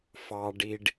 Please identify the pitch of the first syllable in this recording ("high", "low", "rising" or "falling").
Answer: low